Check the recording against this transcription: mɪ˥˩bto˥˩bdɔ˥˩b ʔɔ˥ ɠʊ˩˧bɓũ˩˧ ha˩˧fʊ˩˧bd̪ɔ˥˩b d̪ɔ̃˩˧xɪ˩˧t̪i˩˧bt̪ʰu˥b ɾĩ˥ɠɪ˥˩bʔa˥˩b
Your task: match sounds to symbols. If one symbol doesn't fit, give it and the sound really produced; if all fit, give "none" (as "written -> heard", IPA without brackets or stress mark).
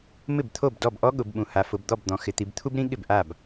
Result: t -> t̪ʰ